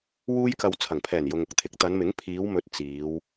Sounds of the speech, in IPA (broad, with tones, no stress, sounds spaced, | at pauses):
w uː˥ j k ɐ˧ w t͡sʰ ɐ˨˩ ŋ pʰ ɛː˨˩ n j ʊ˨ ŋ ʊ˨ k̚ t̪ʰ ɪ˨˥ k̚ t̪ ɐ˨˧ n m ɪ˨˥ ŋ pʰ iː˨˧ w m ɵ˨˥ t̚ t͡s iː˨˧ w